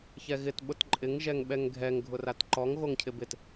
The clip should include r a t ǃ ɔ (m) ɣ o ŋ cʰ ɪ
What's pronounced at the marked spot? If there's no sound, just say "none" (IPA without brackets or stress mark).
ŋ